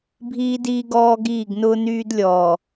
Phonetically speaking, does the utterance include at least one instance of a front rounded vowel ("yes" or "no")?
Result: yes